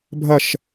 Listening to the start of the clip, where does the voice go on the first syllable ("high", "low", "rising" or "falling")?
falling